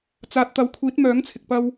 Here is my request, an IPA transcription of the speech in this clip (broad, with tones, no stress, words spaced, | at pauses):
t͡saː˨˥t̚t̪ɐ˨˥w kʷʰiː˨˥t̚mœː˨˥ŋt͡sʰɪ˨k̚pɐ˧w